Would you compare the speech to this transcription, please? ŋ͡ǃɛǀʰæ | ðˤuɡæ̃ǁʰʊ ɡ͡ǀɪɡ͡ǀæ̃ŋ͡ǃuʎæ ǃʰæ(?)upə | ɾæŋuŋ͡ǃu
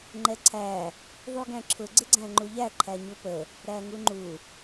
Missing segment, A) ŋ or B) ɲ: B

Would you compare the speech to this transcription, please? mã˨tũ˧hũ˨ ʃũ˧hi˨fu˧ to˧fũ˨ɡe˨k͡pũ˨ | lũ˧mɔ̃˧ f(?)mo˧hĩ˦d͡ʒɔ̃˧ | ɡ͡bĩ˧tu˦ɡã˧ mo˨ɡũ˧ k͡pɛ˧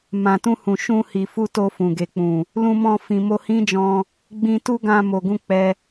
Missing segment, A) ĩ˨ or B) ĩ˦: A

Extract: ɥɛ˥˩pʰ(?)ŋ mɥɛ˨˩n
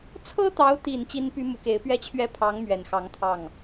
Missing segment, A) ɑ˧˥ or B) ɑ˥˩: A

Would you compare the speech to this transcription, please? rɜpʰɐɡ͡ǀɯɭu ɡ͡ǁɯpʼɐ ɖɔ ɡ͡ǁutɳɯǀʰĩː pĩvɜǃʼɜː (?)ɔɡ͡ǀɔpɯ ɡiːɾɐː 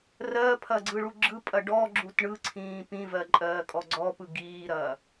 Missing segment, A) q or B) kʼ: B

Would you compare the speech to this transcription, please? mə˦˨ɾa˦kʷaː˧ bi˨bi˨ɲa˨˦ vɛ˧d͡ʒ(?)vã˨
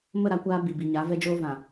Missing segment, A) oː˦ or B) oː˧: B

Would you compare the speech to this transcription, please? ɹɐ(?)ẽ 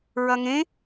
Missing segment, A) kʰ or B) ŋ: B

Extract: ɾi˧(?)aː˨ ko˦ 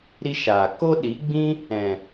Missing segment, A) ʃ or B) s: A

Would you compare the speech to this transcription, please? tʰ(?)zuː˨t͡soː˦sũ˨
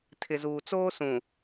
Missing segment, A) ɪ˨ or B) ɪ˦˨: A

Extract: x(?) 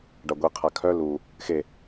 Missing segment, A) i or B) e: B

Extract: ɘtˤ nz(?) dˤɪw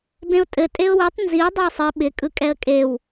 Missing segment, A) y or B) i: B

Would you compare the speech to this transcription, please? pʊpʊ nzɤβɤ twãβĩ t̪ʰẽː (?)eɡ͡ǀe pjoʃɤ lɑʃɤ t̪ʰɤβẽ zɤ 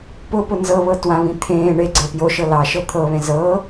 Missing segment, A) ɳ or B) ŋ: A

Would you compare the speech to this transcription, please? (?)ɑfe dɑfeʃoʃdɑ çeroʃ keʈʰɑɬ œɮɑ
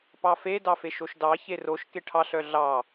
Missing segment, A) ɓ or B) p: B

